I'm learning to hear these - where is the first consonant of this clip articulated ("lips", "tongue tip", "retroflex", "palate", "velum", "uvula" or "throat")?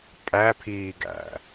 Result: lips